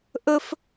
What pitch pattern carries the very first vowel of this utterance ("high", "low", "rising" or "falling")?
high